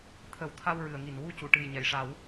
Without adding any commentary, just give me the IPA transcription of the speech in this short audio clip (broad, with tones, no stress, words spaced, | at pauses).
t̪ʰə˨˩w t̪ʰa˧wɹɨ˨˩˨ə̯ŋi˨˩˨nwu˧ cu˨˩˨ʈɨ˨˩j ɲɛ˨˩˨jʂa˨˩˦w